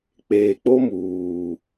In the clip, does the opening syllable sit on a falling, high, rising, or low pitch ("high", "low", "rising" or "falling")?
low